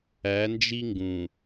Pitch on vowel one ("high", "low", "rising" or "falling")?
rising